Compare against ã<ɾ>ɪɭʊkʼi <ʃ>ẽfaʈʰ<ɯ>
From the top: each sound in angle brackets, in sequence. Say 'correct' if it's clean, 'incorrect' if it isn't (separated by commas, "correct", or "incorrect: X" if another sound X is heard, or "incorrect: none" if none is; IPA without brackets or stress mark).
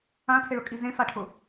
incorrect: tʰ, incorrect: z, incorrect: ʊ